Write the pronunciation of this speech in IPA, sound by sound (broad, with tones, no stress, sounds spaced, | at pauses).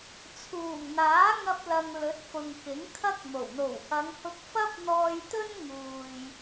t͡sʰ uː˨˩ ŋ n̪ aː˨˥ ŋ ɐ˧ p̚ l ɐ˨ ŋ l ɵ˨˥ t̚ f ʊ˨ ŋ k ɪ˨˥ ŋ kʰ ɐ˥ k̚ m o˨˩ w n̪ o˨˩ w h ɐ˨˧ ŋ h ʊ˧ k̚ f ɐ˥ p̚ n̪ ɔː˧ j t̪ ɵ˥ n ŋ uː˨ j